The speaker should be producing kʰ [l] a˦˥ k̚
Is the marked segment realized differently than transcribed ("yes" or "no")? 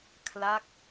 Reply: no